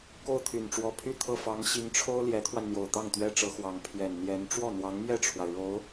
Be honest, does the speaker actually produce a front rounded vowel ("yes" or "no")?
yes